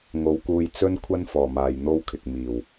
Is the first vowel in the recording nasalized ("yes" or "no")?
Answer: no